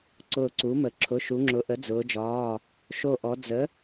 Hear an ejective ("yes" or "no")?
no